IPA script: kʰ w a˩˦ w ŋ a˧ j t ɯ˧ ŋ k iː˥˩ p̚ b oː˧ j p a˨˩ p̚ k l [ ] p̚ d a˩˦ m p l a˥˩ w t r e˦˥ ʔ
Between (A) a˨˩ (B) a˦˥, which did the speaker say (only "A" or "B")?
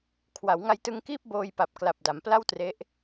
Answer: A